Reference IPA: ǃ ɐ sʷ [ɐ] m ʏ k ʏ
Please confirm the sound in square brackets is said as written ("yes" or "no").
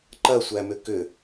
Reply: no